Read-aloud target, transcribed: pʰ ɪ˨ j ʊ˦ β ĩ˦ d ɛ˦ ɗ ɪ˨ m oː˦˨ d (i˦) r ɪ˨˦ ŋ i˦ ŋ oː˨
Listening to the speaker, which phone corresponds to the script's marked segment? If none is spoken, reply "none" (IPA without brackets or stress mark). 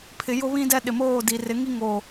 i˨